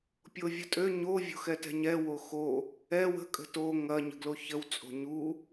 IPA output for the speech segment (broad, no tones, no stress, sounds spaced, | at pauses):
pʲ o vʲ ə tʼ ø ɲ o vʲ o̤ x ɛ t ɛ̤ ɲ ɛ w o x o | ɛ w ə̤ kʼ ə̤ t o ŋ ɐ ɲ ə̤ ɡ l o ç ə w t͡sʼ o̤ ɲ u